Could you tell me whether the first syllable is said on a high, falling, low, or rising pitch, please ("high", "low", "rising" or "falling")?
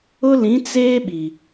high